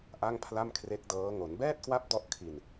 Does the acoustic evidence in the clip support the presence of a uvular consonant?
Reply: no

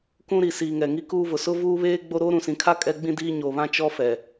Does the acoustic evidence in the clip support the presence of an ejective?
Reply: yes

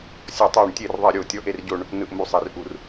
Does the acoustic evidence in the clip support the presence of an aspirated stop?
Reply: no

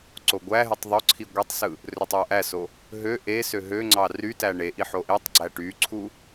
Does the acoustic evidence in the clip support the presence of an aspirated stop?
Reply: yes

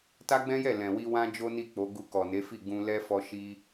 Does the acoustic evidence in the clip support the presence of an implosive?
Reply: no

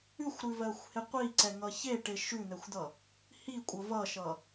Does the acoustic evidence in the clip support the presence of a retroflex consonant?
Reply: yes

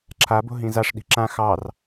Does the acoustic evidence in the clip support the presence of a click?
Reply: yes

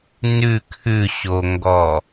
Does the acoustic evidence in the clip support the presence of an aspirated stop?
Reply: yes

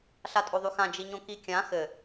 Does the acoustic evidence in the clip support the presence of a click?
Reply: no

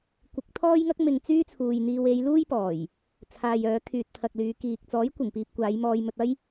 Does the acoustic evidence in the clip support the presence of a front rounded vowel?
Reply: yes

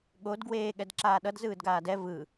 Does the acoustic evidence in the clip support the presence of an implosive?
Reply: yes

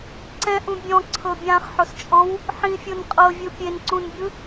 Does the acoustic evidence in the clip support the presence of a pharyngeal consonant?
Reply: yes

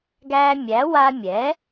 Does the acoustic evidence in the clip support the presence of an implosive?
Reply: no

